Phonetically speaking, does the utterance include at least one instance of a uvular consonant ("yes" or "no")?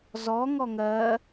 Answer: no